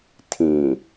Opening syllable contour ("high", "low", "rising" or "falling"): low